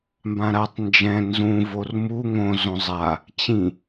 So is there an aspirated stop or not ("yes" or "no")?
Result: no